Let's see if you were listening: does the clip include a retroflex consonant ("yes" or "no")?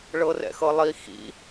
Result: yes